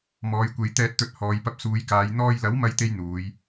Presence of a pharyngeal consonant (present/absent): absent